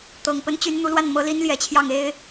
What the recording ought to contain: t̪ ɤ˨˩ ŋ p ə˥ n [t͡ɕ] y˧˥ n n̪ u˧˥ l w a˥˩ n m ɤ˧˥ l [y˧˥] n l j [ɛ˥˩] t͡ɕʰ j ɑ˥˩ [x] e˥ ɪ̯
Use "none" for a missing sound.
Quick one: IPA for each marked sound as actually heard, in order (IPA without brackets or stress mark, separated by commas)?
t͡ɕ, i˧˥, ɛ˨˩, ŋ